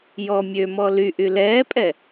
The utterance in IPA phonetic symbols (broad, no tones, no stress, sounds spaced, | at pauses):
j ɔ mʲ ø m ɔ l y ʔ y l ɛː pʼ ɛ